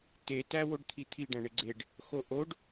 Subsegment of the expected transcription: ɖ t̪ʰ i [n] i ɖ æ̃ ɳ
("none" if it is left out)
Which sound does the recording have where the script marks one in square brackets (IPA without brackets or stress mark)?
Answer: t̪ʰ